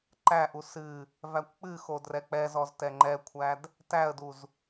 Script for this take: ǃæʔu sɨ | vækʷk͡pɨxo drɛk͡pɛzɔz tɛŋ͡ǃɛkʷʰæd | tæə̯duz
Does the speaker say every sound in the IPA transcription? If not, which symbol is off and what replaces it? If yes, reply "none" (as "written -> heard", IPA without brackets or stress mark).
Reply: none